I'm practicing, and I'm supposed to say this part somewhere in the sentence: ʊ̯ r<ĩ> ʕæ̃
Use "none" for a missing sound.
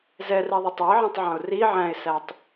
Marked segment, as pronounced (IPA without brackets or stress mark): i